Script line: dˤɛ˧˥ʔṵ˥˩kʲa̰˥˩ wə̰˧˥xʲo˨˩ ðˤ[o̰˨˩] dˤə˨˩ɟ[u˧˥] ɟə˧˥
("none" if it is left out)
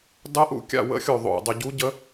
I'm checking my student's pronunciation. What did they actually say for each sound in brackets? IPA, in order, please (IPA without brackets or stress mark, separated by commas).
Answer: o̰˨˩, u˧˥